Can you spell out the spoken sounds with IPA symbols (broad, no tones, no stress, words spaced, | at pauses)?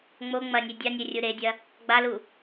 ŋ͡mo ŋ͡mɐnʲe dʲanʲe rʲuɾedʲɐ | ɡ͡balu